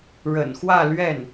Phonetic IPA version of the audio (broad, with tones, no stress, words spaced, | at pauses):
ɻə̰˨˩n xwä˥˧ lɥɛ˥˩n